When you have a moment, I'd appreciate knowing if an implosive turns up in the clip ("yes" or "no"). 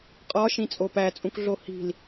no